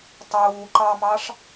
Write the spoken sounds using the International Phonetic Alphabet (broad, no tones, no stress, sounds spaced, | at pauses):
tˤ uː ǃ ɑ m ɑ ʂ